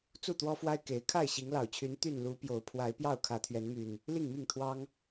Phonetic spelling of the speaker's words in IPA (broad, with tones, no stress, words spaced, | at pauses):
t͡su˥˨t̪wɔ˦fwa˦ɪ̯ ke˨˦ɪ̯ kʰa˥˨ɪ̯ɕi˨˦ŋlɑ˨˩ʊ̯t͡ɕʰy˨˦n t̪y˥˨n lu˨˦ pjo˨˦ʊ̯pʰwa˨˦ɪ̯pjɑ˥˨ʊ̯ kʰä˨˦t̪ʰɥɛ˨˦nmy˨˩n | li˥˨ŋmi˥˨ŋt̪ʰwɑ˦ŋ